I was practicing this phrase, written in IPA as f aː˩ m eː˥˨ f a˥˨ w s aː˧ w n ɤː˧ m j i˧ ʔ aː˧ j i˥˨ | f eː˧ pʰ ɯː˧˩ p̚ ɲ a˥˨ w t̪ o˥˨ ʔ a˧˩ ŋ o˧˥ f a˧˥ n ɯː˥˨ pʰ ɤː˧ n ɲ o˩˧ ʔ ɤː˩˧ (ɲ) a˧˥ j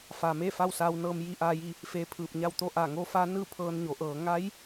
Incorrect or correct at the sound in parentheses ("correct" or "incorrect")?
incorrect